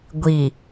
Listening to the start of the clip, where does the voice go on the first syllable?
low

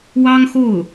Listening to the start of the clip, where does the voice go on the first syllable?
high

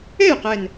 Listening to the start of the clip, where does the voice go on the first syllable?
falling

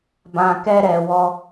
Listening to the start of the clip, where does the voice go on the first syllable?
low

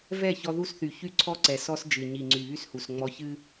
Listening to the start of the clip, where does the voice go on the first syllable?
falling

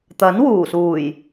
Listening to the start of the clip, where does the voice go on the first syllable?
rising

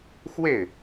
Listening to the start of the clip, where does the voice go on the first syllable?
falling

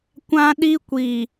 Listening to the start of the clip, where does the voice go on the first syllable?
high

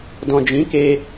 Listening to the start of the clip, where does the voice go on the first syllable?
low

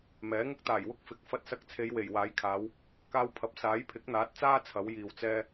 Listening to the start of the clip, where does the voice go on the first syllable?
rising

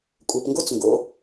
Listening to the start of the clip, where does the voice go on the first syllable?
low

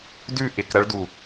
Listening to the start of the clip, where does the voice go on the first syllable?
falling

